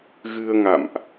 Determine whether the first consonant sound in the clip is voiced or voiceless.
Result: voiced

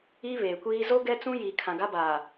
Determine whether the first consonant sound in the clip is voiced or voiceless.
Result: voiced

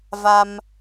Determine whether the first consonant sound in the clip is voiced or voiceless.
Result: voiced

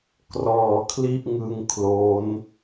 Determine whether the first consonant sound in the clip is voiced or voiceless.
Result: voiceless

